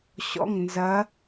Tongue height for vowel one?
mid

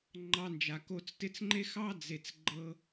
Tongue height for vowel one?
low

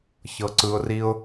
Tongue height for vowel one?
mid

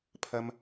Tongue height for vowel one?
low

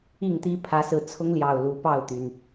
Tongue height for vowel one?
high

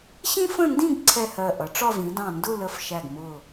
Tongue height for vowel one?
high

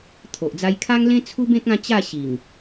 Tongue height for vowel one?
mid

